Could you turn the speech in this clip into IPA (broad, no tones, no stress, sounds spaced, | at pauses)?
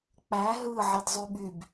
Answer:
k͡p æ ɦ ɯ ʕ i d zˤ y ɓ y b